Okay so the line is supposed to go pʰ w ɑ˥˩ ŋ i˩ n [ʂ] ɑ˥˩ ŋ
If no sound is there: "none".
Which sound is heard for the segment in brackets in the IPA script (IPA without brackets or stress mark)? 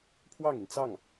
t͡s